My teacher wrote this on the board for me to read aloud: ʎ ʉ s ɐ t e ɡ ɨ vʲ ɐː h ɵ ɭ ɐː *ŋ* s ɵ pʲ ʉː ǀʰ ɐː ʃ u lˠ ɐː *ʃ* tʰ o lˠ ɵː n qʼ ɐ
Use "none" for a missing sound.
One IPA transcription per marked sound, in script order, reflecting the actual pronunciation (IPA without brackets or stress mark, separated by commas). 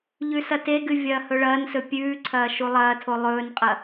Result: n, none